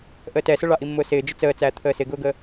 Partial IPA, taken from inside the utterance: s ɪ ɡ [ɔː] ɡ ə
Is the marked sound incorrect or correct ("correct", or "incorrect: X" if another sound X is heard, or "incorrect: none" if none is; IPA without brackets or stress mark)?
incorrect: ʊː